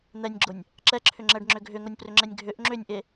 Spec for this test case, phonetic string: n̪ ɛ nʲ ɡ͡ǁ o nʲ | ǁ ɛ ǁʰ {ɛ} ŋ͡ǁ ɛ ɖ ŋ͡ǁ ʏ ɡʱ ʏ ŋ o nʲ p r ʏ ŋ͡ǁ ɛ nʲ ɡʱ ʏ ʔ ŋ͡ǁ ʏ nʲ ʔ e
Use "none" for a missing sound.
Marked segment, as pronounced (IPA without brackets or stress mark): ʏ